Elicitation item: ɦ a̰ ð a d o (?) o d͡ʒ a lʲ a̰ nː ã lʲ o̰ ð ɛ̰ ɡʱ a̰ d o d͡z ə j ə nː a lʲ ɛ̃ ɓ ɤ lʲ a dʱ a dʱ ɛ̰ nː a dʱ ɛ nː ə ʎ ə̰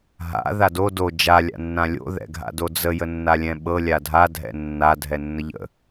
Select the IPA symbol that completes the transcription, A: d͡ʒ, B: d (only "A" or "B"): B